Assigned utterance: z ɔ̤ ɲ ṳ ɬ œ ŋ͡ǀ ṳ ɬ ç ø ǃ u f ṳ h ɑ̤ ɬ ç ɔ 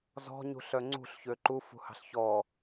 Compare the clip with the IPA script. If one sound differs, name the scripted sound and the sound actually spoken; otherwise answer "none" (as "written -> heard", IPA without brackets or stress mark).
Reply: none